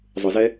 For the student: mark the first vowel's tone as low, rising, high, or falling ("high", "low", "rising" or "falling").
low